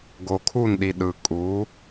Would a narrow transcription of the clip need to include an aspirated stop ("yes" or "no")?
yes